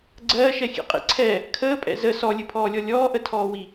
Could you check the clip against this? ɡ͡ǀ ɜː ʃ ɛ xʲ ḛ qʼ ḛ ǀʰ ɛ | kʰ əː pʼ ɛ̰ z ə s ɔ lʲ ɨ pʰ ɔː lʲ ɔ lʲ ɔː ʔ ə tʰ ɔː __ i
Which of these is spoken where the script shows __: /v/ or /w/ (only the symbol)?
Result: w